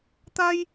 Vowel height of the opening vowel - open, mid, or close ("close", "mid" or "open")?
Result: open